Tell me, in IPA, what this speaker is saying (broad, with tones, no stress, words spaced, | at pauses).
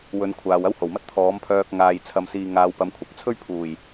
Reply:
wɵ˨˧n kʷʰaː˨wɐ˥who˨˩wmɐ˥t̚ t̪ʰɔː˨˥mpʰœː˧k̚ ŋaː˧jt͡sʰɐ˧msiː˧ ŋaː˨˧wpɐ˨˧mkʷʰɐ˨p̚ t͡sʰɵ˥ɥpʰuː˨˩j